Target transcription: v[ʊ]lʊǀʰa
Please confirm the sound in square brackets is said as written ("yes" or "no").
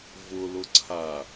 yes